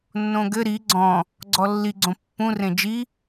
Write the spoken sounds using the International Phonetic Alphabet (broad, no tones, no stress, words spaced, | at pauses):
nːõɡɘ ɾi ɡ͡ǀɔ̃ | ɡ͡ǀɔlːiɡ͡ǀõ pːũrẽ d͡ʒi